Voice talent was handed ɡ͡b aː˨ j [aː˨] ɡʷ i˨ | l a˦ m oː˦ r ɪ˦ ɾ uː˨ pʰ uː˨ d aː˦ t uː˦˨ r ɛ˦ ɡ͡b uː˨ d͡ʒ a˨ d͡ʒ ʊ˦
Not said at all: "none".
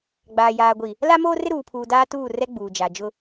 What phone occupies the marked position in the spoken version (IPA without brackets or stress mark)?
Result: aː˨